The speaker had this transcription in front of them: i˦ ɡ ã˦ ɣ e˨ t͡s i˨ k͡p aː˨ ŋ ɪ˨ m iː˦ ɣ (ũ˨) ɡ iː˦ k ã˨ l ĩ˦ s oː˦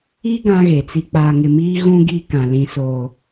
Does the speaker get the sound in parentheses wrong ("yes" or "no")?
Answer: yes